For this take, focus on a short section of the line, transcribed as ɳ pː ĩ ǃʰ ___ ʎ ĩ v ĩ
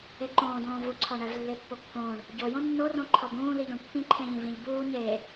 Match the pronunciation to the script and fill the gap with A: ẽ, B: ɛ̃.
A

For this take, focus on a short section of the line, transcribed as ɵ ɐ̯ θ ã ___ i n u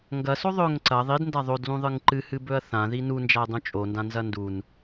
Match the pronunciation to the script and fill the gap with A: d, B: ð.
B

